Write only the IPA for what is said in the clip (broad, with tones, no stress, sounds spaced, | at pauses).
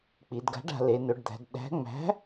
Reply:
k͡p i˩˧ d ɡ a̤˨˥ ɖ a̤˩˧ l e˩˧ n ɵ˩˧ ɖ d̪ æ̤˩˧ d ɗ æ̤˨˥ ŋ͡m æ̤˨˥